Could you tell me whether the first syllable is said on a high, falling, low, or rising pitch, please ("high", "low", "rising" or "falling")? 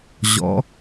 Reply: rising